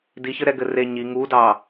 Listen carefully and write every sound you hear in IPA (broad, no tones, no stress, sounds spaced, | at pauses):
d i ç ɘ ɾ ɛ ɡ ɘ r e ɲ i ŋ u d ɑ